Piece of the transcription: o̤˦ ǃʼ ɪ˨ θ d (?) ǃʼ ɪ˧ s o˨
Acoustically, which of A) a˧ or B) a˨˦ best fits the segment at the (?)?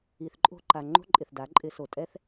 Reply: B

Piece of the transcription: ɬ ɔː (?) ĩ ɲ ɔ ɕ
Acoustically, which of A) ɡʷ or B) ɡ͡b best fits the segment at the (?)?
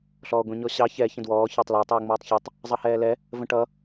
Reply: A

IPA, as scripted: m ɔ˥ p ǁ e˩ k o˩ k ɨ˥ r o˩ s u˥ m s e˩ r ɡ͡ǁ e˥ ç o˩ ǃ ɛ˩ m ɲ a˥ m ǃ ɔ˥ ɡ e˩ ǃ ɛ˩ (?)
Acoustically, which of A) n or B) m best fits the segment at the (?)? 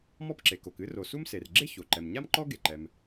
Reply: B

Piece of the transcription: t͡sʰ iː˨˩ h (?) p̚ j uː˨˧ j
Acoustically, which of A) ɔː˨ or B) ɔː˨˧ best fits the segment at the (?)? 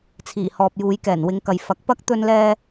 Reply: A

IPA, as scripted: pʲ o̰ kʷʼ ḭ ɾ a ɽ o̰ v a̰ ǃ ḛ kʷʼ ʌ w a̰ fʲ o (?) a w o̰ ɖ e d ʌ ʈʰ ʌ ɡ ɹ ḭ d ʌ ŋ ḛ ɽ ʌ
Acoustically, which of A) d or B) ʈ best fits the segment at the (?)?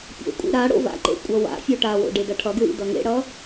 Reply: B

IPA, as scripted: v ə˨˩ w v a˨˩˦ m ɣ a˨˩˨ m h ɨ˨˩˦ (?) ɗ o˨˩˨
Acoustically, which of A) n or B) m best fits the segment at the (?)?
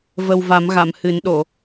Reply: A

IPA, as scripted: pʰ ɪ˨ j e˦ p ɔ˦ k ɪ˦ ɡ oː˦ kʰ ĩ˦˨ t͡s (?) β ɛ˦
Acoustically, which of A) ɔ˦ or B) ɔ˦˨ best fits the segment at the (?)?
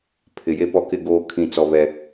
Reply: A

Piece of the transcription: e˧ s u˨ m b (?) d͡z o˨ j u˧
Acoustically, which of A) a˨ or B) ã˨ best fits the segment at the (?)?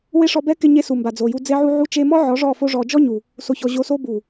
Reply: A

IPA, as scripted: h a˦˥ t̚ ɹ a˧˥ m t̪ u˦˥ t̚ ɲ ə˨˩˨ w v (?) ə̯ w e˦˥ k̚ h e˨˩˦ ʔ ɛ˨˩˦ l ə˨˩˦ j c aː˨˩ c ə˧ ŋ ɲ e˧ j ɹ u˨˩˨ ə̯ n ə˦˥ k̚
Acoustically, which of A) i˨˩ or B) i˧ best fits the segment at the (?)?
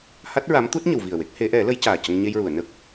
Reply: A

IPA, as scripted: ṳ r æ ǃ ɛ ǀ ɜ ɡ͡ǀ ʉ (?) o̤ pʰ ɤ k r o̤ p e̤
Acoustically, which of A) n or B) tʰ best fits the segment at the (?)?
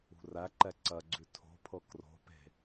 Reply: B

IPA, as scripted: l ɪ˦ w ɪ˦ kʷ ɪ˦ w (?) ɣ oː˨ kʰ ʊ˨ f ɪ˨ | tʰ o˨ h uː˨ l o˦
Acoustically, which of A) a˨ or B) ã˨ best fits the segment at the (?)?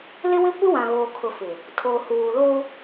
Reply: B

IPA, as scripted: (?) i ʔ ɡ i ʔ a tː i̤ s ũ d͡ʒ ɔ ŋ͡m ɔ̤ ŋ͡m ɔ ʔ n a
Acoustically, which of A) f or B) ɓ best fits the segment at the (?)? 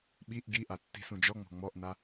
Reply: B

